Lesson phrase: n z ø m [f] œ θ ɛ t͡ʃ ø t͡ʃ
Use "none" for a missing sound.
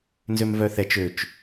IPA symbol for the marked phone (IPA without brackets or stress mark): v